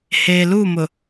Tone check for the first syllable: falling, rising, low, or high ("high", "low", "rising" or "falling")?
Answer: low